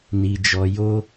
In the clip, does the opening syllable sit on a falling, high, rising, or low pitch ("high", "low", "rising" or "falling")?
low